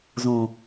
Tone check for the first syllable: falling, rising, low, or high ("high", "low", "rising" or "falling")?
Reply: low